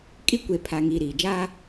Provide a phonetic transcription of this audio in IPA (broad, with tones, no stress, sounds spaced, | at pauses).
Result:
kʼ i˦ kʷ e˨ pʰ a˨ ŋ iː˨ ɾ iː˨ d͡ʒ aː˦